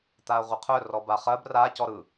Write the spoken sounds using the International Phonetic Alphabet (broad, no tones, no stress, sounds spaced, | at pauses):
t̪ a ɐ̯ ʁʷ ə qʰ œ r ɔ b a χ ɜ b r a c ɔ ɾ ɯ